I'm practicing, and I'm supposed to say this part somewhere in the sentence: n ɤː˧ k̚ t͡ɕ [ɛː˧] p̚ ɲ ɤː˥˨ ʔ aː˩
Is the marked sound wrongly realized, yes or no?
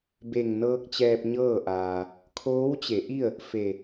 no